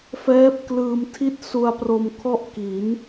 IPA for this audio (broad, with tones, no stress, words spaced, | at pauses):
fɛː˦˥p̚klɯː˧m tʰi˥˩t̚ su˧a̯pro˧mkʰɔ˥˩ʔki˩˦n